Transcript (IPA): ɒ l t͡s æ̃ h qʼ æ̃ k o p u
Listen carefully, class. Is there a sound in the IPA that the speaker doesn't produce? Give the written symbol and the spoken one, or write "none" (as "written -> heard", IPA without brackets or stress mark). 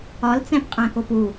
h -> p